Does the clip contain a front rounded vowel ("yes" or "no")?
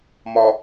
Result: no